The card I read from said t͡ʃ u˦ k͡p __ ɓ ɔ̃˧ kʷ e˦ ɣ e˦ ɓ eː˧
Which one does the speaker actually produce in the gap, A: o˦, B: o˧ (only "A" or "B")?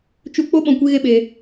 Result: A